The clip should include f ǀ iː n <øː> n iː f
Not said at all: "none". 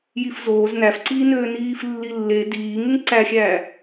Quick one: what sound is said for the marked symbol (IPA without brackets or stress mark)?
øː